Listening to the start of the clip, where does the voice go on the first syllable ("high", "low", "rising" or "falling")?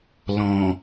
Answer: low